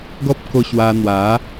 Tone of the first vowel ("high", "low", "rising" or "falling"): high